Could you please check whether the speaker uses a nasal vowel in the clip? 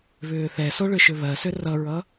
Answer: no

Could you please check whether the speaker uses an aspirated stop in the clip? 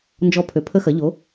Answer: yes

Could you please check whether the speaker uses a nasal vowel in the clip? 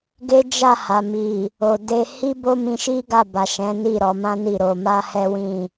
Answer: yes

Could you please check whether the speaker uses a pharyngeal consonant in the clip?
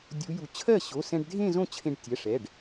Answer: no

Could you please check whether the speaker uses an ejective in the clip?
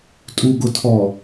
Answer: yes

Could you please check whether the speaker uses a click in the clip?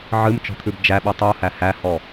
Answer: no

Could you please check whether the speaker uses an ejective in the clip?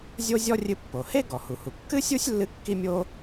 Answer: no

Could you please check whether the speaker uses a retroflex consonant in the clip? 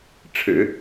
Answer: yes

